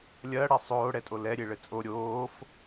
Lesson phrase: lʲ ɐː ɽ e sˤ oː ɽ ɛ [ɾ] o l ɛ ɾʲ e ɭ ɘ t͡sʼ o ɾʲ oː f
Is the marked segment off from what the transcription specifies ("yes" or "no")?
yes